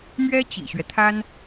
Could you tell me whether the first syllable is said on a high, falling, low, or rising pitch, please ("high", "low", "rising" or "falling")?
high